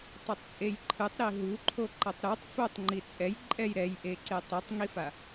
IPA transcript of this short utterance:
tˤ u tˤ t͡sʼ e j ǃʰ ɯ tˤ ɾ i ɦ u ǃʰ o ǃ ʌ tˤ ɾ u tˤ f o tˤ ŋ͡ǃ i t͡sʼ ɛ j ǃʼ ɛ j ɾ ɛ j ʔ e ǀ e tˤ i tˤ ŋ i f a

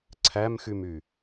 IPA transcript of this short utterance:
ǀʰ æ m x y m y

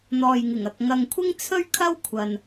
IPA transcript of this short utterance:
n̪ ɔː˨ j ŋ ɪ˨˩ ŋ ɐ˨ k̚ ŋ ɐ˨ ŋ kʷʰ ɪ˥ ŋ t͡sʰ ɵ˥ ɥ kʰ ɐ˥ w kʷʰ ɐ˨ n

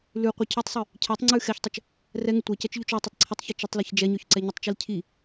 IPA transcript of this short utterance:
l ʉ qʷ i cʰ ʉ tˤ sˤ ʉ | cʰ ɛ tˤ ŋ͡ǀ ʉ x ɛ ç tˤ ə t͡ʃ | r ɛ ŋ ə tʷ ɛ c ɛ t͡ʃ ʎ ʉ t͡ʃ ɔ tˤ ə tˤ ǀʰ ə tˤ ç i t͡ʃ ə tˤ l i ç d͡ʒ ɛ ɲ ɔ ç ǀ ɛ ɲ ə tˤ t͡ʃ i l cʰ i

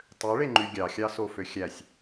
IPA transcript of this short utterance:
tˤ ø ɭ e ŋ͡ǃ y ɡʲ ɑ xʲ ɑ s o f ø xʲ æ sʲ

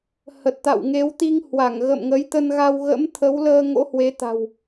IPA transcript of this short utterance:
h ə˨˩ t̚ t̪ a̰˧˨ w ŋ e˨˦ w t̪ i˧ ŋ h w a˧˩ ŋ ɣ ə̰˧˨ m ŋ ə˨˦ j t̪ ə˧ n ɣ a˧ w ɣ ə̰˧˥ m t̪ʰ ə˨˦ w l əː˧ ŋ o̰˧˥ h w e˨˦ t̪ a̤˨˩ w

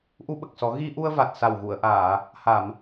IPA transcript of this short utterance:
ʔ u˧ ɓ ə˨˩ k̚ s ɔ˨˩˦ ɣ i˧ ʔ u˧ ə̯ v a˨˩ t̚ s a˨˩ w ɣ u˨˩˨ ə̯ ʔ aː˨˩˨ | h a˨˩˨ m

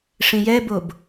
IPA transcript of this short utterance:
ʂ ĩ j ɛ b o b

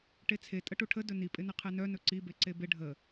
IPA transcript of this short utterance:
ʈ e t͡sʰ e tʼ ə ʈ u ʈʰ ə d ɵ n i pʼ ɪ n ɪ qʰ e n œ n ɵ ǀ i b e ǀ e b ɪ ɖʱ ə

